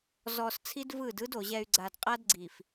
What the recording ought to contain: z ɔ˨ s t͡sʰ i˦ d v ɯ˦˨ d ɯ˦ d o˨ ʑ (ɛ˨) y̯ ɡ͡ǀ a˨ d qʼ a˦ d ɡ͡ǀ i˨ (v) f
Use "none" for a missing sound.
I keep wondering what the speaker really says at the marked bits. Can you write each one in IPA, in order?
ɛ˨, none

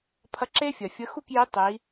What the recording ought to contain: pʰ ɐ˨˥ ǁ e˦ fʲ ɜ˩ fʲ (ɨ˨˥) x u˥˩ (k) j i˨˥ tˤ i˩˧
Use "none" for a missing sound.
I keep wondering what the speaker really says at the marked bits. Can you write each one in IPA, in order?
ə˨˥, k

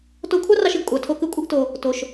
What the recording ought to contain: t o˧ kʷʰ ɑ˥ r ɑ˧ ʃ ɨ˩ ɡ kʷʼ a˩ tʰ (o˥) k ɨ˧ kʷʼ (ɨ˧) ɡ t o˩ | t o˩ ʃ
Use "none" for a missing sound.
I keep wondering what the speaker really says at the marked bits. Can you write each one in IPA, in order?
o˧, ɨ˧

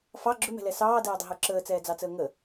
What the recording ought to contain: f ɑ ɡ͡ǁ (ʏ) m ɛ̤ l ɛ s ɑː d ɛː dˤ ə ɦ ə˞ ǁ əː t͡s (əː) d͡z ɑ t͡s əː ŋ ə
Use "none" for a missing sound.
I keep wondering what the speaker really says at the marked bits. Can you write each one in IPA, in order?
ʏ, ɛː

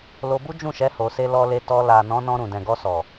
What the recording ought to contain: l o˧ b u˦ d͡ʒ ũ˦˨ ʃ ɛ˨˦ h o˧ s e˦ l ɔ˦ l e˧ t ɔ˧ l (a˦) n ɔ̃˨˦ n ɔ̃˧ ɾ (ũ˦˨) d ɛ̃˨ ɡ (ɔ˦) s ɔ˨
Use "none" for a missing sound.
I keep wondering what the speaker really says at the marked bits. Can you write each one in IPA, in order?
a˨, ũ˨, ɔ˧

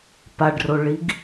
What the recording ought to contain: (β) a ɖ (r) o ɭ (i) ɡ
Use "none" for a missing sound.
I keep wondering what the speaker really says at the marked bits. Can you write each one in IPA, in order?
p, r, i

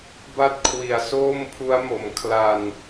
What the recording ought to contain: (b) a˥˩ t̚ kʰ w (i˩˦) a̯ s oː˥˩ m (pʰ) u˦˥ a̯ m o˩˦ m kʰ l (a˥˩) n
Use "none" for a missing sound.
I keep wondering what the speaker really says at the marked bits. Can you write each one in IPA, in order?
b, i˨˩, pʰ, a˧

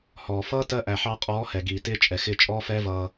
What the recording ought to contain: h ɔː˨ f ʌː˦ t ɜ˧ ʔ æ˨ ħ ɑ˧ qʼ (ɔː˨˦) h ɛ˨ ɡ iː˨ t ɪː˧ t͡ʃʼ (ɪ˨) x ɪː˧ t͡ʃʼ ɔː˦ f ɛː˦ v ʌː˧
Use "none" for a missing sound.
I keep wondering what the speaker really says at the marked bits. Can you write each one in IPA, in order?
ɔː˨˦, ɛ˨

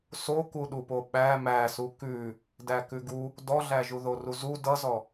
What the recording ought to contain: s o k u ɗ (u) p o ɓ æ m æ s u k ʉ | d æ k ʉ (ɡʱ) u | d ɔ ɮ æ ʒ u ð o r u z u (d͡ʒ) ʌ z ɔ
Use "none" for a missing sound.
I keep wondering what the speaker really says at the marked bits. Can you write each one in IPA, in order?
u, ɡ, d

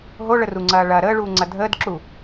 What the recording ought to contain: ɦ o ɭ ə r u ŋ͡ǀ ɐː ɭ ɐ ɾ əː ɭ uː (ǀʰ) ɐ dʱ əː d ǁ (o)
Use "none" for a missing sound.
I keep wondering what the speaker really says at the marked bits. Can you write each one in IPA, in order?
ŋ͡ǀ, u

